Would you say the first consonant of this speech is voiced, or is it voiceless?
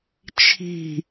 voiceless